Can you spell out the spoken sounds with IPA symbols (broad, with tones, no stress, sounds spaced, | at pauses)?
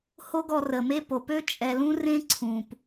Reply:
h o˦ ɡ ɔ˧ r ə˨ m e˦ p o˨ p ø˦ t͡ʃʼ ɛ˨ l ũ˦ r ẽ˦ ǀʰ ũ˨ p